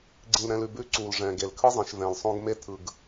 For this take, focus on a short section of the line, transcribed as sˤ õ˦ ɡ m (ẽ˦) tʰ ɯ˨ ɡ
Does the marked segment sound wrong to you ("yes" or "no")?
yes